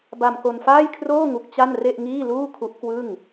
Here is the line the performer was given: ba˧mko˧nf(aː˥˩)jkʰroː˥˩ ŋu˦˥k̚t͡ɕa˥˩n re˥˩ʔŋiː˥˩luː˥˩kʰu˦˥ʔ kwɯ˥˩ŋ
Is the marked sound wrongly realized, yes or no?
no